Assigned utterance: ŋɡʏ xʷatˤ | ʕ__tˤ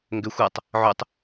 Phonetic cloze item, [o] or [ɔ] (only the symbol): o